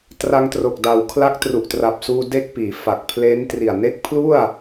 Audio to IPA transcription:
t r a˧ ŋ t r o˨˩ k̚ d a˨˩ w kʰ l a˦˥ k̚ t r u˨˩ ʔ t r a˨˩ p̚ s uː˧ d e˥˩ k̚ p iː˩˦ f a˨˩ k̚ pʰ l eː˦˥ n t r i˨˩ a̯ n e˦˥ k̚ pʰ l u˥˩ a̯

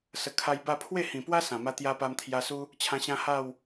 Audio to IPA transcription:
s ə˨˩ kʰ a˧ j b a˥˧ pʰ w e˥˧ h ĩ˨˩ p w a˦ s ã˨˩ m a˦ t̪ j a˦ p a˧ m t̪ʰ j a˧ s u˦ | t͡ɕʰ ã˧ ɕ ã˦ h a˥˧ w

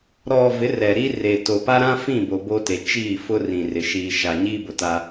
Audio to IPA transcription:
ɾ ɔ˨ v ɪ˨˦ r ɛ˨ ɾ i˦ r e˨ t o˨ p a˦ ɾ ã˦ f ĩ˦˨ b o˨ b o˦ t e˨ t͡ʃ iː˦˨ f ʊ˦ r ĩ˨ r ɪ˨ ʃ iː˨ ʃ a˨ ɲ iː˦ b ʊ˨ t a˦

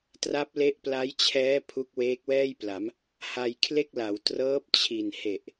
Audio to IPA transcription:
t r a˦˥ p̚ l e˦˥ ʔ p l a˦˥ j t͡ɕʰ ɛː˦˥ pʰ u˦˥ k̚ w eː˦˥ k̚ w ɛː˥˩ j p l a˩˦ m | h a˧ j kʰ l e˥˩ k̚ l a˩˦ w t r ɤː˦˥ p̚ t͡ɕʰ i˨˩ n h e˨˩ ʔ

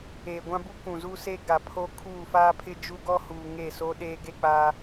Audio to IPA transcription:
eː˨ ɡʷ ã˦ b u˦ k ũ˨ z u˦ s e˦ ɡ a˨ pʰ o˦ kʰ uː˦˨ f aː˦ pʰ ɪ˦ d͡ʒ u˦ ɡ ɔ˦ h uː˨ ŋ e˦˨ s o˦ ɗ eː˦ ɡ e˦ k͡p aː˦

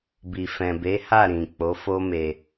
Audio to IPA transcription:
b i˨ f ɛ̃˨ b e˨˦ h a˦˨ ɾ ĩ˨ k͡p o˨˦ f o˦ m e˧

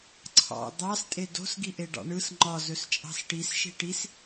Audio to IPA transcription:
ǀʰ ɑ̰ d̪ ɑ s tʼ e d o̤ s ɡ i ʔ e ɖ ɑ̰ ɳ ɯ s ŋ͡ǃ ɒ z ɵ s t͡ʃʼ ɑ̤ s ʈ i s ʃ i̤ ʈ i s

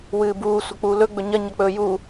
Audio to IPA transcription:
w ɨː b uː sʷ ɐ k͡p uː l ɵ ɡ͡b ɵ ɲ ɐ ɲ ɐ k͡p ɵː j u

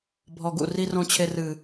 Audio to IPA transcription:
bʱ ɔ˨ ɡ ṵ˨ r i˨ r õ˨ t͡ɕʰ e˨ r ɨ˨

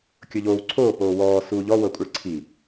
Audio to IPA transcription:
kʲ ɤ ʎ oː w ǀʰ oː p oː w ɔː s uː ʎ ɔ w ɤ kʷʼ ɛ ɭ ǀʰ i

